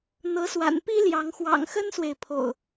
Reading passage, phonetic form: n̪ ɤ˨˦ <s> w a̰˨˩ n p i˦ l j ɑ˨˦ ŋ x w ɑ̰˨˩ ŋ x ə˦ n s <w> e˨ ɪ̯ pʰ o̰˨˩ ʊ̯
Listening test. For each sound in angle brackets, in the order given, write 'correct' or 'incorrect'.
correct, correct

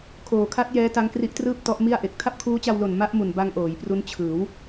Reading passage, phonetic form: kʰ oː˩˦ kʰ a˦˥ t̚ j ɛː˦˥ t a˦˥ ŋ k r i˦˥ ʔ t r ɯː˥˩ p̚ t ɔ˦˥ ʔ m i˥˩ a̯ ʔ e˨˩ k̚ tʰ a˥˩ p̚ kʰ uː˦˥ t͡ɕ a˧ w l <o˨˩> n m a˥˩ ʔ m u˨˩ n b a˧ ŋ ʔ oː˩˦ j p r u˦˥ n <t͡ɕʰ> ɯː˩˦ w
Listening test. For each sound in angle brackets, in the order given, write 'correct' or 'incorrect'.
correct, correct

